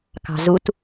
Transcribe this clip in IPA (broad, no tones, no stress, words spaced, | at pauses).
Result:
kɑ̤zut